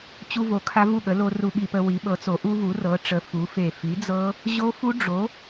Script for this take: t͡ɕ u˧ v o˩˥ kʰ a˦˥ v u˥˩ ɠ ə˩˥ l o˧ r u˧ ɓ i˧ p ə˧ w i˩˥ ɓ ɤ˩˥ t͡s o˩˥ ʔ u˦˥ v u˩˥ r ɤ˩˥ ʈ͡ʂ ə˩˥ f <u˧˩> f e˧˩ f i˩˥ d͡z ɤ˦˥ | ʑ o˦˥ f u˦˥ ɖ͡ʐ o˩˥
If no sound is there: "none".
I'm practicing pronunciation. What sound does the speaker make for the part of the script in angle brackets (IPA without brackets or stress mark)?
u˩˥